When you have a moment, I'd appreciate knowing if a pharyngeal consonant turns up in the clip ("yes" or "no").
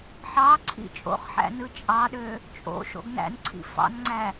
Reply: yes